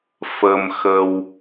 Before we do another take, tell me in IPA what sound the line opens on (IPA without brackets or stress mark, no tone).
f